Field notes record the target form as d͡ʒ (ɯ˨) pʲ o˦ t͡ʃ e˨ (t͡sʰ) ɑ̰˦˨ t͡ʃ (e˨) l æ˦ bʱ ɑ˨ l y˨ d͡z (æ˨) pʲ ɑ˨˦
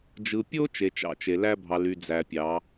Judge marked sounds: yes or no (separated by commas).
yes, no, yes, yes